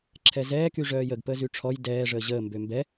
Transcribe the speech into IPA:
ǁʰ ɛ z ɛː k y ʐ œː j ə ɡ p əː z y ʈ͡ʂʰ ɔ j d ɛː ʐ əː ʑ əː m b ø m b ɛ

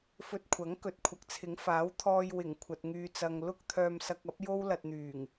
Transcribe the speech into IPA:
f ɵ˧ t̚ kʷʰ ɐ˨˥ ŋ k ɵ˨ t̚ kʷʰ ɐ˨ k̚ t͡sʰ ɪ˨˥ ŋ f aː˨˥ w t̪ʰ ɔː˧ j w ɪ˨˩ ŋ kʷʰ ɐ˨ t̚ ŋ yː˨ t͡s ɐ˨ ŋ l ʊ˥ k̚ t̪ʰ œː˧ m s ɐ˧ k̚ ɐ˨˥ p̚ j o˥ w l ɐ˧ t̚ n̪ yː˨˩ ŋ

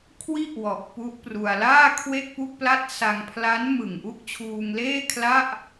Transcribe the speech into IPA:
kʰ w i˥˩ ʔ w ɔ˨˩ ʔ p u˦˥ ʔ p r u˧ a̯ l aː˥˩ kʰ w e˥˩ k̚ p u˥˩ k̚ p l a˥˩ t̚ s a˧ ŋ pʰ l a˦˥ n m ɯ˨˩ ŋ ʔ u˦˥ k̚ t͡ɕʰ uː˧ ŋ l eː˥˩ kʰ l a˥˩ ʔ

